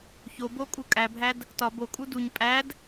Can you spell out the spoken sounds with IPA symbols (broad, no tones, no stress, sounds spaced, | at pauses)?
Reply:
ç o b o kʼ u kʼ æ bʱ æ d | t ɒ b o kʼ u d u ɲ pʼ æ d